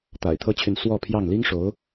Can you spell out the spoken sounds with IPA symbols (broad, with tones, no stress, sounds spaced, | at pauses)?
t̪ a̰˨˩ ɪ̯ t̪ʰ ɤ˥ t͡ɕʰ y˨ n s w ɔ˥˧ pʰ j ɑ˥˩ ŋ l i˥ ŋ ʂ o˧˥ ʊ̯